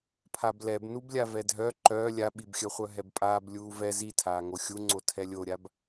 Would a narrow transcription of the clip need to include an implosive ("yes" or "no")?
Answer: yes